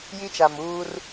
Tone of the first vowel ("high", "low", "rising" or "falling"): high